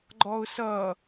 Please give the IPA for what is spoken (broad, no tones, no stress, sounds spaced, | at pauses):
ɡ͡ǃ ɔ ʊ̯ s ʌː